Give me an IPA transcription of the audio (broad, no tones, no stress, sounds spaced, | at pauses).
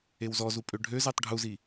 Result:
e w z ɔ z u pʼ ø ɖʱ ø z e tˤ ɖʱ u z i